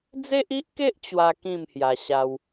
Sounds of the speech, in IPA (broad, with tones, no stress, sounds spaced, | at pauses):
d͡z e˦ ʔ i˦ ʔ k e˦ ʔ t͡ɕ w a˦ k ĩ˥˧ m h j a˧ ɕ a˧ w